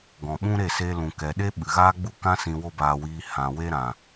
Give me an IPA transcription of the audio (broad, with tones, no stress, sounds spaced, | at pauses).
ɡ ɔ̃˨ ɓ ũ˦ ɾ e˦˨ s e˧ l ũ˨ k ɛ˨ ɗ e˦ ɓ ɨ˨ ɣ aː˦ ɡ͡b u˦ k ã˦ s ĩ˧ w o˦ b aː˧ w iː˧ h ã˨ w e˦ ɾ ã˨